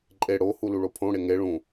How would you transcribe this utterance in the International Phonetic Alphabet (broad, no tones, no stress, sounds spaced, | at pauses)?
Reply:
ǃʼ e ɽ o h u l u ɭ o pʰ õ ɽ e ŋ e ɭ ũ